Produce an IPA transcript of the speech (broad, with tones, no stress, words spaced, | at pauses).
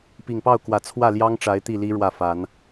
pi˨˩ŋpɑ˥˩ʊ̯kwä˨˩ t͡sʰwä˥˩ljɑ˥ŋ ʈ͡ʂa˧˥ɪ̯t̪i˥˩li˥ ɻwä˥˩fa˨˩˦n